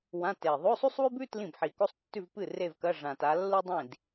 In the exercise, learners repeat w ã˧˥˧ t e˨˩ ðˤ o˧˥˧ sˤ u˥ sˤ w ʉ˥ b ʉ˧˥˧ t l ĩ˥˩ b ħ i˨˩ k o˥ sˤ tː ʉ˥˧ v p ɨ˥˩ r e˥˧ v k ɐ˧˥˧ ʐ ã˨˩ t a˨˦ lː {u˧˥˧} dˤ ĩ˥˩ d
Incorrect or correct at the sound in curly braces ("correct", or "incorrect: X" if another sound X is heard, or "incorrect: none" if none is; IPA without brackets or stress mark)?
incorrect: u˥